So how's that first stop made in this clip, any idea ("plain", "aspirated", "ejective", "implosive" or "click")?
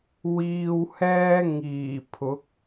aspirated